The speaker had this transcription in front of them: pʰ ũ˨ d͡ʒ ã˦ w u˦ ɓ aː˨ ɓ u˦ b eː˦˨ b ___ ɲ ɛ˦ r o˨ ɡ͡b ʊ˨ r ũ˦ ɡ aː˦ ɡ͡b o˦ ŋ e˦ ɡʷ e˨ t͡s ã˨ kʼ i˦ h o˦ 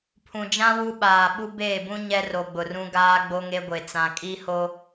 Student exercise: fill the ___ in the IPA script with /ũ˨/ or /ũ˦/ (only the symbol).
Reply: ũ˦